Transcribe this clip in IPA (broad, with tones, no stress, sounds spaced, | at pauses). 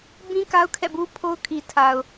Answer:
b ĩ˦ k a˦ ʊ̯ kʰ ɛ̰˦˨ b u˦ pʰ o˦ ʊ̯ kʰ i˨ tʰ a˨ ʊ̯